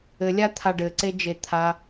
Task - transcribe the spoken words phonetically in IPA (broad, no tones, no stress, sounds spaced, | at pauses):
ɘ lʲ a t̪ʰ a ɖ ɘ ǀ e d͡ʒ e t̪ʰ a